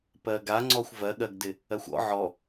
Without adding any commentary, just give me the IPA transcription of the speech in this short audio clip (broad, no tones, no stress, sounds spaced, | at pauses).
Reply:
p ɜ ɡ a ŋ͡ǀ ɔ xʷ v ɜ ɠ ɜ ɡ d ɪ | ɜ xʷ ɔ̰ ʕ ɔ